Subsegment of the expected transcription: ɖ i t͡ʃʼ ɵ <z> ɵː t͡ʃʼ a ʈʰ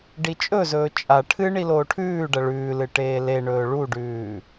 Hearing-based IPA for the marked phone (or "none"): z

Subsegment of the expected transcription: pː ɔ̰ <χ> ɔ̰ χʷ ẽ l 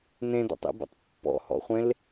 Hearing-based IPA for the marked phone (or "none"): h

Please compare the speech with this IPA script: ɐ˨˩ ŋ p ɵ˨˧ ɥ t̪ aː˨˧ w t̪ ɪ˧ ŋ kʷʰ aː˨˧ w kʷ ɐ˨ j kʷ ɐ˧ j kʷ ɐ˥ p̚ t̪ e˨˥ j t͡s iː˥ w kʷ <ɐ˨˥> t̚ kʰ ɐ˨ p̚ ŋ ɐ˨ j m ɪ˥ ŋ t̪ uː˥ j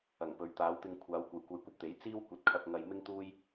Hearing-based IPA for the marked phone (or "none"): ɐ˨˥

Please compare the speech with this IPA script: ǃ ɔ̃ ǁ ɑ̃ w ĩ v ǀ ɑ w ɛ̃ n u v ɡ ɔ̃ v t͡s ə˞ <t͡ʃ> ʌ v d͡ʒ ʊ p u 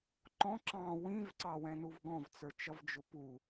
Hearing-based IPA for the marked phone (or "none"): t͡ʃ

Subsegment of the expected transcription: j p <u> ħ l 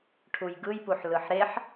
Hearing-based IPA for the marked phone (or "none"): u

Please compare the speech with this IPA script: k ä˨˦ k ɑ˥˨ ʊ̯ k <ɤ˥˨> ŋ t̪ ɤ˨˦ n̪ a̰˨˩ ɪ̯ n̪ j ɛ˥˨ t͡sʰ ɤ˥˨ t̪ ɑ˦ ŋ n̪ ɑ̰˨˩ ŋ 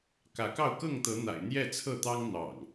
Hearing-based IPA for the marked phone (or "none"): ɤ˥˨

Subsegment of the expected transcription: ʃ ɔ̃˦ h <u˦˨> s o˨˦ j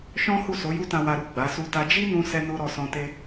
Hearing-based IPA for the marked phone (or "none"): u˦˨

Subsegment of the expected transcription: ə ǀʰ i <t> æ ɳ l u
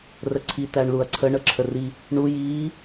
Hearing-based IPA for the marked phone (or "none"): t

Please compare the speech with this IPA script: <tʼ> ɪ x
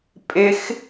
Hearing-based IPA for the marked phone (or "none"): pʼ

